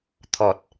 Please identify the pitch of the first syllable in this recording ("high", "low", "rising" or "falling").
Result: low